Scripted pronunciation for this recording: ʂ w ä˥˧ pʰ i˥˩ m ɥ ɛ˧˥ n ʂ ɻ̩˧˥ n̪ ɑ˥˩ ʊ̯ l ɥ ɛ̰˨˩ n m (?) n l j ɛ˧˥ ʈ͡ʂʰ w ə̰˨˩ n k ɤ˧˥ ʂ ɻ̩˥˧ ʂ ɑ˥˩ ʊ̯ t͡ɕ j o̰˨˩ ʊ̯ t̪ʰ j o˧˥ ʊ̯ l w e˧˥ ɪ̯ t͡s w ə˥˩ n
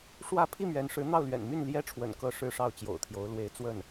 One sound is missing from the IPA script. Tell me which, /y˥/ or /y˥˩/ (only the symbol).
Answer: y˥˩